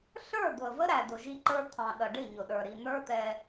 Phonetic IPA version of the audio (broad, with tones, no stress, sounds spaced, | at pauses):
ɬ ə˞˦˨ d̪ ʊ˨ ə̯ v ə˦ ɾ æ˨ d ʊ˨ ʒ i˦ ǃ ə˞˦ t̪ʰ ɑ̃˨ ɗ ʌ˨ ɖ ɪ˦˨ ɲ ʊ˨ ɗ ə˞˨ ɾ i˨ n̪ ə˞˦ t̪ ɛ˦